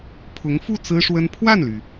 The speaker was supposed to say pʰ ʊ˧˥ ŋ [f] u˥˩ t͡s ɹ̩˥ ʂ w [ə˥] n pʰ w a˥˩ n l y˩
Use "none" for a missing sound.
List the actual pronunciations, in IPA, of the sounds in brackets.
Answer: f, ə˥

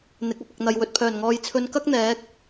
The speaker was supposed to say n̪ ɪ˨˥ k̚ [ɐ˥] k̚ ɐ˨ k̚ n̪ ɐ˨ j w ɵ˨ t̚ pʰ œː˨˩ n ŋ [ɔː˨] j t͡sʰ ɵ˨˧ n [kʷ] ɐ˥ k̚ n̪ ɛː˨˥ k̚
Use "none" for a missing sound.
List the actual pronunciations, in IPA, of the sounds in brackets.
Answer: ɐ˨, ɔː˨, k

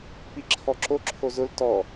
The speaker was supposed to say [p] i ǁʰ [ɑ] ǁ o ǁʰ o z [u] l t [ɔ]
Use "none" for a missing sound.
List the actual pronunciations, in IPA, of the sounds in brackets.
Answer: p, ɔ, ʊ, ɔ

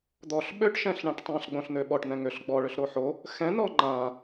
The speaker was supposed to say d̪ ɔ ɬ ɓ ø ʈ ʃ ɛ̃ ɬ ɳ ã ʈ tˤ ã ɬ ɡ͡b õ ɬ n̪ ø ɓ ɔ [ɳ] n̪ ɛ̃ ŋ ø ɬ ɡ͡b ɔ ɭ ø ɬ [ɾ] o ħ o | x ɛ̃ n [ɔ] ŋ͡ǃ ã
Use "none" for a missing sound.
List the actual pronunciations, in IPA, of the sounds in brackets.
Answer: ʈ, ɾ, ɔ

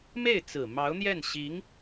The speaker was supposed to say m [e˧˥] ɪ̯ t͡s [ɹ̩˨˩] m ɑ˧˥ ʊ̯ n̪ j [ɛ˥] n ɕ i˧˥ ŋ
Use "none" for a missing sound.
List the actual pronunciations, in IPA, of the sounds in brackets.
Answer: e˥˩, ɹ̩˨˩, ɛ˥˩

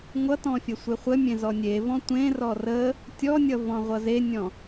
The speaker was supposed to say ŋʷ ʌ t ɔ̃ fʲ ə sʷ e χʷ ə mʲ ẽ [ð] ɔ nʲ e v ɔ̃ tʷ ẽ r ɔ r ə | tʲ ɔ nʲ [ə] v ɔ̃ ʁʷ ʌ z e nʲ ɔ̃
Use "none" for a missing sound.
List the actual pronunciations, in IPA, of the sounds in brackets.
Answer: z, ʌ

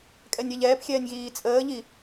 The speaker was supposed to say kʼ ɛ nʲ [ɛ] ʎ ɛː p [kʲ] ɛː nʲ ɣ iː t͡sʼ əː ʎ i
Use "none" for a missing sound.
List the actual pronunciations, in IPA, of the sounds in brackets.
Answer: ɛ, xʲ

